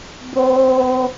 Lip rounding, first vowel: rounded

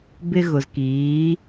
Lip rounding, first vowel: unrounded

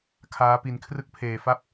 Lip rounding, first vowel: unrounded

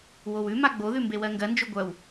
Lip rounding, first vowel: rounded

